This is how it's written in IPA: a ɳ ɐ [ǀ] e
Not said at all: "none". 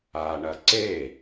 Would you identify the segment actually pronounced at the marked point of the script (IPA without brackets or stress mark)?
ǀ